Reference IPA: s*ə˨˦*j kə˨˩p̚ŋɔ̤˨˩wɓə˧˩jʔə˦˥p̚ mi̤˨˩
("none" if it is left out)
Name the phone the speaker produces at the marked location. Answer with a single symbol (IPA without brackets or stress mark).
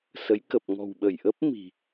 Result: ə˨˦